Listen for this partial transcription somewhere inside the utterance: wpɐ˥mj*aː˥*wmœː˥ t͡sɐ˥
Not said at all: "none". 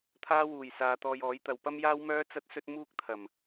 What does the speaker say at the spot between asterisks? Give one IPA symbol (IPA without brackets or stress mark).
aː˥